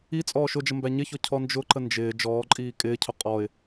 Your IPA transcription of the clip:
i t͡sʼ ɔː ʃ ʊ d͡ʒ ə m b æ ɲ ɪ ç ɔ cʰ ɔ n d͡ʒ ʊ ǃ ə n d͡ʒ ɪː d͡ʒ ɔː ǃʼ iː kʼ ɪː cʰ ʊ qʼ ɔ ɪ̯

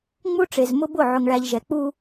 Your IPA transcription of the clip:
ŋ͡m u˦ ʈ͡ʂ e˨ z m ʊ˦ b ʊ˦˨ ʕ ʊ˨ ŋ ɭ æ˨ ʎ ʒ ɛ˨ k͡p u˦

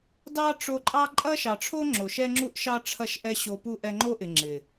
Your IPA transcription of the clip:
d ɑ˦ ʈ͡ʂ o˧ ǃʼ ɑ˦ ǃʼ ɐ˦ ʃ ɑ˨ ʈ͡ʂʰ o˦ ŋ͡ǁ o˨ ʃ ɛ˦ ŋ͡ǁ u˦ ʔ ʃ ɑ˦ ʈ͡ʂʰ ɐ˦ ʃ ʔ ɛ˦ ɕ o˧ p u˦ ʔ ɛ˧ ŋ͡ǃ o˦ ʔ ɪ˨ ŋ͡ǁ ɪ˨

